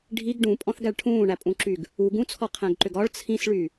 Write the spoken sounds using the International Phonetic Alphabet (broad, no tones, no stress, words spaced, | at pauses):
ɖʱiɡ ɖũpʼɔ̃θɡæɭ ʈʰũːɳæpʼũǁyɡ | u ɡũt͡sʰɔqʰæ̃ɡǃʏɡ ɒɭ t͡sʰĩsɭy